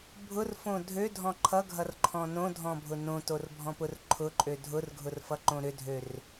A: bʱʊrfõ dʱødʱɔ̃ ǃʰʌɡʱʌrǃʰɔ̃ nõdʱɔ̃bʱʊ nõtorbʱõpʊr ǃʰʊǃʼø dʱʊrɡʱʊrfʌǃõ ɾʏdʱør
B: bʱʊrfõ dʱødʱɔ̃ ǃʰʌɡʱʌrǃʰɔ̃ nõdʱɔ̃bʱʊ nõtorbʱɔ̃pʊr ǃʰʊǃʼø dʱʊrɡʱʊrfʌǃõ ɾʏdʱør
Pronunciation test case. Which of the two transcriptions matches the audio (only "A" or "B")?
B